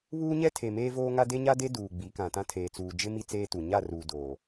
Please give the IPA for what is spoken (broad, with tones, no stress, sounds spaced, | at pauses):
β uː˦ ɲ ɛ˦ tʰ e˨ m eː˦ v oː˦ ŋ a˦ d e˦ ɲ a˦ d e˦ d uː˨ ɡ͡b i˨˦ k ã˨ t ã˦ tʰ eː˨ t͡s uː˨ d͡ʒ ɪ˦ m i˦ t͡s eː˦ t u˨ ɲ a˦˨ r uː˨ d oː˨